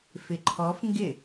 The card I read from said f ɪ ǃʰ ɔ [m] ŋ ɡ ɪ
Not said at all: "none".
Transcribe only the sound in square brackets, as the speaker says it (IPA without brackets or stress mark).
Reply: f